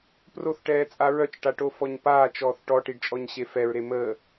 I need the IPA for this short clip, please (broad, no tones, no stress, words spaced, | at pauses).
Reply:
proθʈɛːt͡sʼa ɹœt͡ʃʈaʈofɔɲ paːt͡ʃɔːθ ʈɔʈiɖt͡ʃʼɔɲɕe fɛɹɾe mə